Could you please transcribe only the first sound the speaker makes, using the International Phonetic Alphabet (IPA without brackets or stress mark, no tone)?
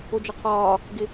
o